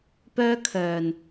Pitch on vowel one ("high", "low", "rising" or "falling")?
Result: high